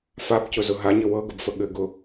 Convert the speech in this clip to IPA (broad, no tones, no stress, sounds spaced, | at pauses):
f a b c ʊ z ʊ ɦ a ɲ ɘ w ɤ ɡ ə b f ə ɠ ɘ ɡ ʊ